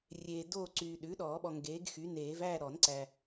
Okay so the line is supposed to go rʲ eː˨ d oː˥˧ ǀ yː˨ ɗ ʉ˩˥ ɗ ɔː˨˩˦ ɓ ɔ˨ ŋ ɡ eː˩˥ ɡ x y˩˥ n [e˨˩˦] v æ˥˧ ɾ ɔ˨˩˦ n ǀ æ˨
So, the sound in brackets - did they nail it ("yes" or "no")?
no